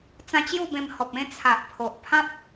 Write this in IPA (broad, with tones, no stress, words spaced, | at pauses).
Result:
t͡sã˧t͡ɕju˥˧bẽ˧m hɔ˨p̚ẽ˦ t͡sʰa˨ʔpʰo˨ʔ pʰã˦p̚